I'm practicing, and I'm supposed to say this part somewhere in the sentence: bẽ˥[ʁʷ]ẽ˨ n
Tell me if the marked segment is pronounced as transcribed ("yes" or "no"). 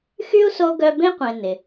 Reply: no